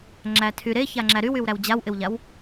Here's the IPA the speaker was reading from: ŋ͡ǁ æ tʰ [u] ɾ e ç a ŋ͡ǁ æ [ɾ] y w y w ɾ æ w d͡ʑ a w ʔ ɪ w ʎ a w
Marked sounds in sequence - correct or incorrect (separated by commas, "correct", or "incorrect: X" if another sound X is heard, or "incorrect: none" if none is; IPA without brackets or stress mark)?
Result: incorrect: y, correct